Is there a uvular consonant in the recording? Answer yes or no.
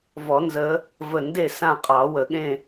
yes